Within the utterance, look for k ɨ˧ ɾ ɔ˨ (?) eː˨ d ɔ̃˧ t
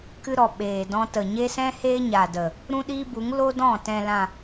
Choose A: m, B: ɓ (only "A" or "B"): B